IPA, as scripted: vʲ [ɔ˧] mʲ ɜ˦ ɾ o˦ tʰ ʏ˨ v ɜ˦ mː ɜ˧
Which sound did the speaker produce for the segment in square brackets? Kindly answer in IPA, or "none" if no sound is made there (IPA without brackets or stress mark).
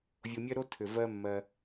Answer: o˧